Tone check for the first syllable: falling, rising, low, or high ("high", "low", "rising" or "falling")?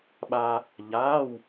high